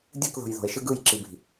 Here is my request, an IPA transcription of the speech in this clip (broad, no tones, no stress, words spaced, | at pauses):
dʲɯkðo̤j ðo̤e̯ʃɯ ɡɯjǁibi̤